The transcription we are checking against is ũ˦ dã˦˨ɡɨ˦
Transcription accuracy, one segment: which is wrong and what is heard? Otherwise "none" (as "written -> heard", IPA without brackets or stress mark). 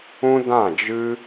ɡ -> d͡ʒ